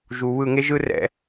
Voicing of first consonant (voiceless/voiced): voiced